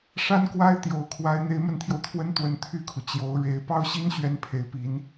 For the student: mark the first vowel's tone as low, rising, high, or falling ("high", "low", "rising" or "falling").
high